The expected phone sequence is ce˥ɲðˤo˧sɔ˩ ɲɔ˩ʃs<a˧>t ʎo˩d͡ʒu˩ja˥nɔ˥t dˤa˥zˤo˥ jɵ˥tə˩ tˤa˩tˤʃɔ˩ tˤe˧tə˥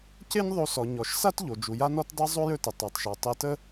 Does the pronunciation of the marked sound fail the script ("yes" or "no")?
yes